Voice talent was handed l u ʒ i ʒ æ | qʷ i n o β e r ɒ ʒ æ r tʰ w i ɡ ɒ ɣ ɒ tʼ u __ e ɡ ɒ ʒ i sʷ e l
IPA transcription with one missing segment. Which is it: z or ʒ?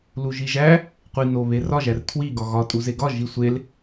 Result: z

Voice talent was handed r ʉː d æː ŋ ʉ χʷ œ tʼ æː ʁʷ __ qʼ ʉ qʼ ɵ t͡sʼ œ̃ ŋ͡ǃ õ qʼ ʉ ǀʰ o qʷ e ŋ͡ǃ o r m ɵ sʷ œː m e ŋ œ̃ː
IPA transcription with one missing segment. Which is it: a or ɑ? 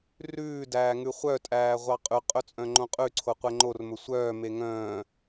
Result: ɑ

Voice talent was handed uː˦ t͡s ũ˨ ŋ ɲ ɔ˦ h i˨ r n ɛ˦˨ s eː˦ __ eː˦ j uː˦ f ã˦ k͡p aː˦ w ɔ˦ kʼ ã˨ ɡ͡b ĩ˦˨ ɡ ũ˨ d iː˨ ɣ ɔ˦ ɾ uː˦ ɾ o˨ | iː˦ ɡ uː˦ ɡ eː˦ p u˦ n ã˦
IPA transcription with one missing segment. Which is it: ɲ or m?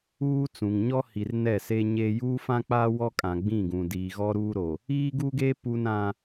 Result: ɲ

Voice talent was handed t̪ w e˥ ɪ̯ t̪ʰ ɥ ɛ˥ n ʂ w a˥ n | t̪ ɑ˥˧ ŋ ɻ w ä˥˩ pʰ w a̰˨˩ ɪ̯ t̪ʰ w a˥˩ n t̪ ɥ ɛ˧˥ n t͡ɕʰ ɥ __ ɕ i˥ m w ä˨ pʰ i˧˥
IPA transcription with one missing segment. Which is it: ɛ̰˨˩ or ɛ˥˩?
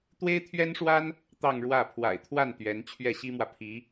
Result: ɛ˥˩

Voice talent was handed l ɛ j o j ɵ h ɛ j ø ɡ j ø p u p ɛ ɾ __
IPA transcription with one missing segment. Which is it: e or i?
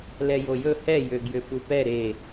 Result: e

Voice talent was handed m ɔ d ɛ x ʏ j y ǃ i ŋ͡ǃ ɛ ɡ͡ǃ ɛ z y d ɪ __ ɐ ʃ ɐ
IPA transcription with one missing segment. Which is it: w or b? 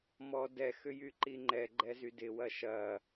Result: w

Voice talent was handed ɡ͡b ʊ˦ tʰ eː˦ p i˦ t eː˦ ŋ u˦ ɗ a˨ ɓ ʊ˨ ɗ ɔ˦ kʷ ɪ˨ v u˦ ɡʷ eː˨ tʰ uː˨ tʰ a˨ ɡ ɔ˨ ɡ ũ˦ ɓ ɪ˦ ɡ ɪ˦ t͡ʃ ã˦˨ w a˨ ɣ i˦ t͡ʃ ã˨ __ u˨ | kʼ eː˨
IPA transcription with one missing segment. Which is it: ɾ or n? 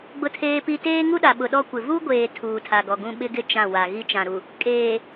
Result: ɾ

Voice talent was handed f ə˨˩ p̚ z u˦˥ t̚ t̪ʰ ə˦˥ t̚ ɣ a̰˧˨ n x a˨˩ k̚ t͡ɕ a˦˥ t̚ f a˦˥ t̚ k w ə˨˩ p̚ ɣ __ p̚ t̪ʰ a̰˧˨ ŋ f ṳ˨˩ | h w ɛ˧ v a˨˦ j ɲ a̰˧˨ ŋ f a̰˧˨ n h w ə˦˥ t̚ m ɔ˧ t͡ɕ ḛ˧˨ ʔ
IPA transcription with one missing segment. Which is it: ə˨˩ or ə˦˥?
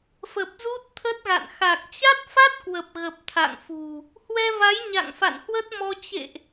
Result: ə˨˩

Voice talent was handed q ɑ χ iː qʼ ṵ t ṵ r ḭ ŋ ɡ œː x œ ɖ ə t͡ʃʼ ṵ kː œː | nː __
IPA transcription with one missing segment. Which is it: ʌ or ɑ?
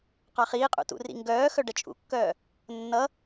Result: ʌ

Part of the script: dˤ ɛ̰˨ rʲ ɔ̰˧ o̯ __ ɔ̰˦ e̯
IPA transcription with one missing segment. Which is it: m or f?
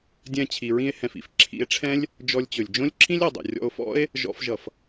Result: f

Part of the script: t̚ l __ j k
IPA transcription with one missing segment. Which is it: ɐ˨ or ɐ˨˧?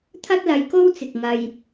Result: ɐ˨˧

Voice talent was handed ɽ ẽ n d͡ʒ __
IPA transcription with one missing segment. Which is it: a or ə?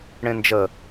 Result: ə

